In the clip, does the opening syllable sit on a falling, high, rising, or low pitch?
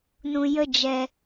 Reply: low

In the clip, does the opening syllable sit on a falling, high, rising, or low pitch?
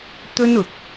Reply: high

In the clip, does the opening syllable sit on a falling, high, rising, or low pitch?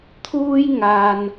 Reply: high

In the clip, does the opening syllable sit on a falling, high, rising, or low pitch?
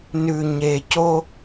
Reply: low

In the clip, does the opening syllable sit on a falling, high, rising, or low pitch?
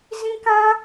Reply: high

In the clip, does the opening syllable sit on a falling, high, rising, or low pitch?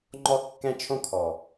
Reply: high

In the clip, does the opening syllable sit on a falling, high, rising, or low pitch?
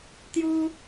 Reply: high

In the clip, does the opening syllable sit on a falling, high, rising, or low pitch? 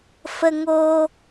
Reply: high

